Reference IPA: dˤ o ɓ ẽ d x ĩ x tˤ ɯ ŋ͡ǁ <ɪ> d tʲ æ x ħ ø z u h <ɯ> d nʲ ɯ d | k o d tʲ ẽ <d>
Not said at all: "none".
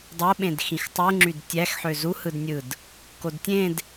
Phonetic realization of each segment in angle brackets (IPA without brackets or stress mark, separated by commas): y, ɯ, d